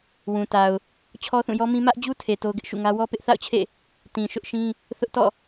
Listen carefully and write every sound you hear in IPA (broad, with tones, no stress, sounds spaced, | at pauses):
w ũ˨ t a˨ ʊ̯ | t͡ɕʰ ɔ˦ θ ũ˦˨ j ɔ˦ m ĩ˦ m ä˦ ʔ d͡ʑ u˦ tʰ e˨ t o˦ ʊ̯ ɡ ɪ˦ ʔ ʃ ṵ˦˨ ŋ ä˦ w ɔ˦ p ɪ˦ ʔ θ a̰˦˨ ʊ̯ t͡ɕʰ ḛ˦˨ | t ĩ˨ ʃ ʊ˦ ʔ ʃ ĩ˦ | θ ʊ˦ ʔ t ɔ̰˦˨